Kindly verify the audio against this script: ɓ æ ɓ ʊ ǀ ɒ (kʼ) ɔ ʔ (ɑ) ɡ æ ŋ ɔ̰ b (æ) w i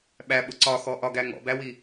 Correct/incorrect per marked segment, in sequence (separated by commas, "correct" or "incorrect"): incorrect, incorrect, correct